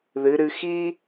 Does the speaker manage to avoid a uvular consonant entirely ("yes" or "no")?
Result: yes